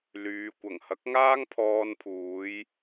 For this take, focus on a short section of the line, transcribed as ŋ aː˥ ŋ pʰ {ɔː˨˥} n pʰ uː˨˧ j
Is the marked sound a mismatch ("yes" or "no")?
yes